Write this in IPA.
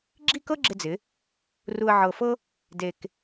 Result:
ɡ͡ǁ i˥˧ k ɤ˥ ɡ͡ǁ ɪ˧ d͡z ɪ˩˧ | r u˧ ə̯ ʕ ɤ˧˩ f ɤ˥ | d e˧ k

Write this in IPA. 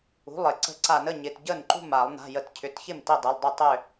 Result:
ṳ˩˧˩ lˠ ɪ˧˩˧ ǀ ə̤˧˩ ǀ a˧˩˧ n ə˩˧˩ ɲ ɪ˩˧˩ t ɟ ə˥˩ n ǃ ṳ˥˩ m a˧˩˧ lˠ n a̤˩˧˩ j ə˧˩˧ t cʰ ʏ˩˧˩ t ç ɪ˥˩ m t i˥˩ dˤ ɪ˩˧˩ lˠ dˤ ʏ˥˩ tˤ ʏ˧˩

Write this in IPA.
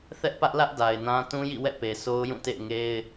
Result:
θ ɛ˦ ʔ p ä˦ ʔ l ä˦ ʔ d a˨ ɪ̯ n ã˦ t ũ˦ j ḭ˦˨ w ɛ̰˦˨ p e˨ sʰ o˦ ʊ̯ j ũ˦˨ t ḛ˦˨ ɪ̯ ŋ e˦ ɪ̯

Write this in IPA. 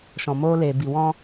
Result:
ʃ ɔ̃˨ m oː˧ l eː˨ b i˨ w ɔ̃˦

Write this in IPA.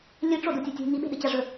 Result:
lʲ ɨ ʈ͡ʂ o d u tʲ o tʲ ṳ ŋ i ɓ e̤ ɗ ɨ t͡ɕ a ʐ ɵ

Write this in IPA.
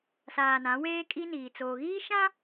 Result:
s aː˨ n ã˨˦ w eː˦ kʼ i˦ n iː˨ t͡s oː˨ ɣ iː˦ ʃ ã˦

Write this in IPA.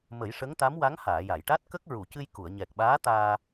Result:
m ə˨˩˦ j ʂ ə˧˥ ŋ t̪ a˧˥ m w a˧˥ ŋ h aː˨˩˨ j a˨˩˨ j ʈ a˦˥ t̚ k ə˦˥ k̚ ɹ u˨˩˨ c ɨ˧ j k u˨˩˨ ə̯ ɲ ɛ˨˩ k̚ ɓ aː˧˥ t̪ aː˧

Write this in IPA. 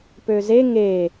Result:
p ø z e ŋ e

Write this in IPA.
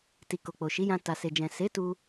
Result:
t i˨ k o˨ k͡p o˨ ʃ i˨˦ j ã˧ t a˨ s e˨ d͡ʒ ɛ̃˨ s e˨˦ t u˧

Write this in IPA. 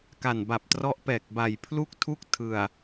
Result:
k a˨˩ n b a˨˩ p̚ t r ɔ˦˥ ʔ p ɛː˨˩ k̚ b a˨˩ j pʰ l u˥˩ k̚ tʰ u˥˩ k̚ tʰ ɯ˨˩ a̯

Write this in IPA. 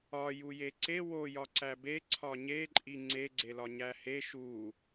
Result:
ɒ j u j e ǀ e w o j ɒ ǀ æ b e ǀʰ ɒ ɲ e ǃʼ i ŋ͡ǀ e ɡ͡ǀ e l ɒ ɲ æ h e ʃ u

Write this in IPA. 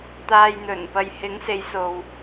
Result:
t̪ aː˧ j n̪ ɵ˨˩ n p ɐ˧ j h ɪ˨˥ ŋ s e˨˧ j s o˨ w

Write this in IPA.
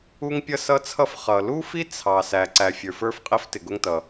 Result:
u˥ ŋ pʲ ʌ˥ s ʌ˥ t͡sʰ ʌ˥ f χ ʌ˩ l u˥ f i˥ t͡sʰ ɑ˩ s æ˩ ǀ æ˩ fʲ ə˞˩ f ə˞˥ f qʼ i˥ f t ɪ˩ ɡ ʊ˥ ŋ t ʌ˩

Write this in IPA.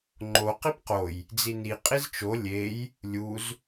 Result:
ŋ͡ǃ o q i p q o j | d͡z i n i qʼ i z t͡ʃ o lʲ e j | lʲ u z

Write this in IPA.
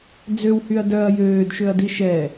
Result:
d͡z ø w h y ɐ̯ d œ ɐ̯ j øː d ʃ ø ɐ̯ d i ʃ ɛ

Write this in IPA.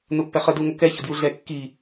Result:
n̪ ʊ pː ɛ χ ə d u ŋ ə k ɛ ç ʊ d j u ɮ ɛ kː i

